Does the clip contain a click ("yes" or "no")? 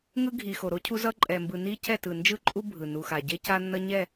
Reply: yes